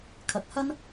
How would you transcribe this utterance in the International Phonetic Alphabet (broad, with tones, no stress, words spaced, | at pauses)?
kʰɐ˨k̚hɐ˥n